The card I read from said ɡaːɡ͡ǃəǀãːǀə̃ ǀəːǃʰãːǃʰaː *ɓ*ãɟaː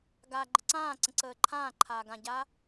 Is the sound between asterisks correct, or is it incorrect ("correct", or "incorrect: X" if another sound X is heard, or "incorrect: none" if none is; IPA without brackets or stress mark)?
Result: incorrect: ɡ